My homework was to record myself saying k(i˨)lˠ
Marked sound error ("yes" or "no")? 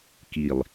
no